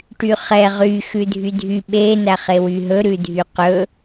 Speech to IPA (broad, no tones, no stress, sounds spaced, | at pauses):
ʈ y χ ɛ ʁ y x ʉ dʱ y dʱ y ɓ e n æ χ e w y ɦ ɵ ɾ ʉ dʱ y q ɵ